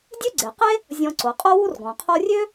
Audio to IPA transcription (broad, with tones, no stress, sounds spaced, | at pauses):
dʲ ø˥ ɡ͡ǀ e˩ q e˥ | zʲ ɔ̃˨ ǀ o˩ qʼ o˥ w u˥ r ɡ ɔ̃˩ qʰ o˦ rʲ ø˥